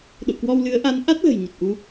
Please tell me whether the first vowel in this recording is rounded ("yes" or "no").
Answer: yes